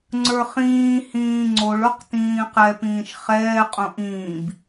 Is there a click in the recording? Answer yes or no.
yes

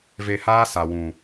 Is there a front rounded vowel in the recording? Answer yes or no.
no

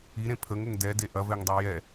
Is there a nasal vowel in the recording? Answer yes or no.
yes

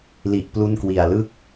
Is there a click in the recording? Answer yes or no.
no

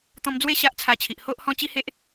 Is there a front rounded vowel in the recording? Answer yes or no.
no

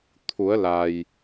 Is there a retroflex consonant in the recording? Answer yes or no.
no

